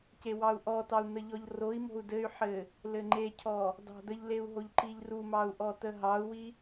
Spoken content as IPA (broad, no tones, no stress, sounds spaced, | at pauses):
c e w ɑ u̯ ʔ ɔ t ɑ u̯ n ə ʎ ɔ ʎ r o i̯ m o̤ u̯ d ɘ y̯ ħ ɘ | l ɘ ŋ͡ǃ e cʰ ɔ | d ɑ̤ d ə ʎ l e u̯ ɦ o ʎ ǃ i ʎ r u m ɑ u̯ ʔ ɔ t ə ɦ ɑ u̯ w i